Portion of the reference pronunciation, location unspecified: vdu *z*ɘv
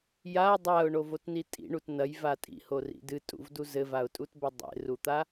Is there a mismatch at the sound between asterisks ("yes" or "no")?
no